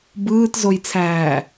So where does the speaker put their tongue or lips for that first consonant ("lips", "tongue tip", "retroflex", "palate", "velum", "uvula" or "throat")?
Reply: lips